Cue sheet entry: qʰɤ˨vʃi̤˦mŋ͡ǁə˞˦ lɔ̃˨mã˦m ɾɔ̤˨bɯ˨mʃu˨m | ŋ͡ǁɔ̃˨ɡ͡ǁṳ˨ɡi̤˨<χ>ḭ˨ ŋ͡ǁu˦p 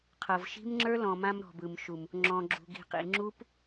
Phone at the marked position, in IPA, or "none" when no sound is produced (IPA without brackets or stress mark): q